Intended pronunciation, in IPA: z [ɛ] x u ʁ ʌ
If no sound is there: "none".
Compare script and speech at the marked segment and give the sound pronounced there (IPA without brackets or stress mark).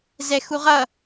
ɛ